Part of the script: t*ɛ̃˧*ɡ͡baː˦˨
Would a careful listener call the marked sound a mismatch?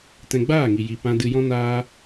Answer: no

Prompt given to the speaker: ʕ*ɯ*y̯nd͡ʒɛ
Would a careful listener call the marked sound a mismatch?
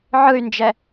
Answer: no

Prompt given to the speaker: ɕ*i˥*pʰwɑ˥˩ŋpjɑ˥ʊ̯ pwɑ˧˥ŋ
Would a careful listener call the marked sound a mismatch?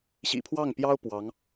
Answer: yes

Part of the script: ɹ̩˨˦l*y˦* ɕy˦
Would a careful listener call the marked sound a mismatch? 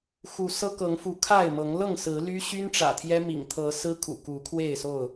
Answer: no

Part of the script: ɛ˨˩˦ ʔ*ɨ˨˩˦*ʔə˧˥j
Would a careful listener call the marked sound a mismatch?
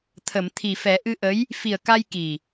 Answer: yes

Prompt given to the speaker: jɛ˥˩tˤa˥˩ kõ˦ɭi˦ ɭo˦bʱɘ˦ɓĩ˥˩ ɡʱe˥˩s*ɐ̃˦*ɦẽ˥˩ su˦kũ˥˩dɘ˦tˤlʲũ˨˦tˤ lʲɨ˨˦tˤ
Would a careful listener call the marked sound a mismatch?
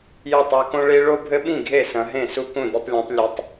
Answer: yes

